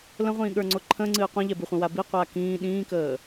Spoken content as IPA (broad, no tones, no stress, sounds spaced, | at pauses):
l ə̃ ʁʷ ĩː ɠ ə˞ ŋ͡ǀ o ǃʰ ə̃ ŋ͡ǀ ɨː qʷ ĩ ʎ ɛ b ɨ χʷ ə̃ w a b i qʷ aː k ĩː ɗ ĩː k əː